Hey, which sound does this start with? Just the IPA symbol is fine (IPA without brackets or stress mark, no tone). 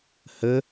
h